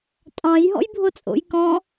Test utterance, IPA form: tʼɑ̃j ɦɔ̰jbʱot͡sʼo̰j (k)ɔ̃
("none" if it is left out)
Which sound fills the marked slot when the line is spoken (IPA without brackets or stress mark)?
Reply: k